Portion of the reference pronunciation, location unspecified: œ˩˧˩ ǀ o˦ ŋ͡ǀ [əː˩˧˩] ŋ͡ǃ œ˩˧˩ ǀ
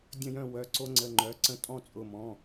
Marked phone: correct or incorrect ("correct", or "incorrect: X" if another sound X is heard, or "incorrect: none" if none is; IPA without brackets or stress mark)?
incorrect: ə˩˧˩